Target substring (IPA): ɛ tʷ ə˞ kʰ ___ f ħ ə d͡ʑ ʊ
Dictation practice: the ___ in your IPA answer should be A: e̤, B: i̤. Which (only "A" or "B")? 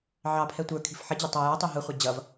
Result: B